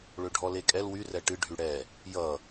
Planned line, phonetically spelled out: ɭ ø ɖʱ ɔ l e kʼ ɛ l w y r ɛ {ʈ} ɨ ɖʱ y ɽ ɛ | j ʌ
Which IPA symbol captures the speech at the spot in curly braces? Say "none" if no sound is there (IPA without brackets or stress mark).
ʈ